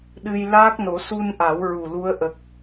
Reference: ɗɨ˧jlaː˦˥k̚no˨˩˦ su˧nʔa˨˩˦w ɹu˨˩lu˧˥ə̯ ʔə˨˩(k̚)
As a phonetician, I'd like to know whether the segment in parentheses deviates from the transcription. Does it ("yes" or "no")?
no